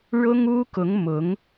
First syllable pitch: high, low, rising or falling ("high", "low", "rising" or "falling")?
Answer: high